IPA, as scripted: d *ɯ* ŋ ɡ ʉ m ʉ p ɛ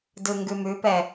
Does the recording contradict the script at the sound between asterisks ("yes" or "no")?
no